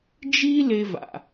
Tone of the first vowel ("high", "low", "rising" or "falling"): high